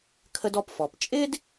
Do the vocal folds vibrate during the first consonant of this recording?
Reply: no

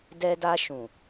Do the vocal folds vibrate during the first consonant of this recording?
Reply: yes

